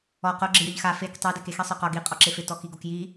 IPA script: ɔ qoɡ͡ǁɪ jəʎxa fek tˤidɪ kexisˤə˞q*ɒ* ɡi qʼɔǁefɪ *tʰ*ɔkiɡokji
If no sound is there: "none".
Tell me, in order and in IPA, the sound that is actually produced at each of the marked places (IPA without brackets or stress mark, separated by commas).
ɒ, t